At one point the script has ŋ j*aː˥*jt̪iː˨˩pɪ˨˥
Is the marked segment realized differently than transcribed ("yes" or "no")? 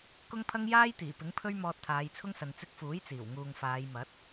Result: no